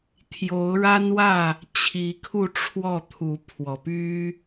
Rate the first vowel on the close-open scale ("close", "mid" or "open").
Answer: mid